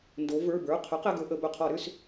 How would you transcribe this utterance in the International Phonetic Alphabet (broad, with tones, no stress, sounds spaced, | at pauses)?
n d o˩˧ v ə˞˩˧˩ b ə˞˩˧˩ qʰ ɵ˩˥ q ɛ˩˧˩ ɡ ɵ˧˩˧ ʔ ə˩˧ b ɵ˩˧˩ qʰ ɔ˧˩˧ ɾ ʏ˥˨ s